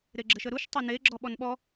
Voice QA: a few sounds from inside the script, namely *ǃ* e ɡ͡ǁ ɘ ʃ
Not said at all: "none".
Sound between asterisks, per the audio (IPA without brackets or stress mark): ɾ